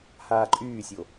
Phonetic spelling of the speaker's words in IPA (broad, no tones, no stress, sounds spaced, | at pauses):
h aː ǃʼ yː sʲ o